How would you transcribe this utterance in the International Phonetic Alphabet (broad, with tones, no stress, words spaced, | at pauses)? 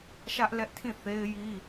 ʃä˦ʔlɛ˦ʔtʰĩ˦˨ θe˦ɪ̯ ji˦